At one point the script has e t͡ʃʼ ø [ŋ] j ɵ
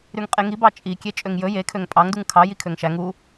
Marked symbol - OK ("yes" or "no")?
yes